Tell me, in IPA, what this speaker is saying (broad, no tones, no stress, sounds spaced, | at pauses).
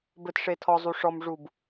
b ɘ t ʂ e tʰ ɔ zˤ u ʂ ɔ m ʐ u b